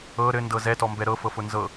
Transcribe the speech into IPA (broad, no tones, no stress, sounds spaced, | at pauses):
ɤ ɾ ɘ n d ɤ z ɛ t ɔ m b ɛ ɾ ɤ f ɤ f ʊ n z ɤ